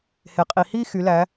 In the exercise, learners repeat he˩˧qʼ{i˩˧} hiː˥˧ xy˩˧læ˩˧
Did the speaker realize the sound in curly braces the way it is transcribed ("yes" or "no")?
yes